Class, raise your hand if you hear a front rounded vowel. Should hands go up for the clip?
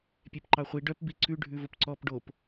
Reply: yes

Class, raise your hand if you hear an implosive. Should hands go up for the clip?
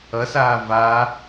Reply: no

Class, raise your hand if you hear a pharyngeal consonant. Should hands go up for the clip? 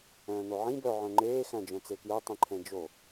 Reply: yes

